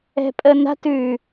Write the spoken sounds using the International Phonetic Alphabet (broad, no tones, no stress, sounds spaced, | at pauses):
ɛ̤ pʼ ə n a̤ t ʉ